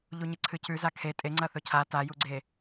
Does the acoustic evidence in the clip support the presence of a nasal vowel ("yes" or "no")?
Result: no